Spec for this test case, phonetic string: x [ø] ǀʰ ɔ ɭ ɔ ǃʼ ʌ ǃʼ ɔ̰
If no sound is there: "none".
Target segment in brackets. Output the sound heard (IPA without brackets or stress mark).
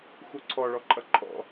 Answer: u